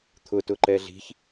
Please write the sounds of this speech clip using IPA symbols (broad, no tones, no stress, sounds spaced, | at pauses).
t̪ʰ ʊ t ʊ ǃ ɛ ɮ i̤ ç